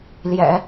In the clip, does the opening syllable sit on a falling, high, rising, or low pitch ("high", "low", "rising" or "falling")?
low